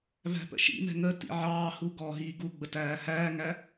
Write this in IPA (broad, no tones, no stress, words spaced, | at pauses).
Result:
væ̤pə̰ʃḭmɛ̤ ŋə tḭʕɑːhu ɡɔːɦiːɡuɡ͡bə tæːhæːŋæ